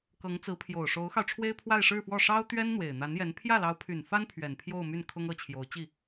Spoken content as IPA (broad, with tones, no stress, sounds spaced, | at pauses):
k ɤ˧˥ ŋ t͡s ɹ̩˧˥ pʰ j o˨˩ ʊ̯ ʂ o˧˥ ʊ̯ x ɑ˧ ʊ̯ ʈ͡ʂʰ w e˥ ɪ̯ pʰ w a˥˧ ɪ̯ ʂ ɻ̩˥˧ f w ɔ˥˩ ʂ ɑ˥ ʊ̯ t̪ ɥ ɛ˥ n n̪ w e˨˩ ɪ̯ n̪ a˧˥ n j ɛ˧˥ n pʰ j ä˥˩ l ɑ˧˥ ʊ̯ pʰ y˨˩ n f a˥ n pʰ ɥ ɛ˨˩ n pʰ j o˥˧ ʊ̯ m y˥˩ n kʰ ʊ˥ ŋ ɤ˧˥ t͡ɕʰ j o˧˥ ʊ̯ t͡ɕ i˥˩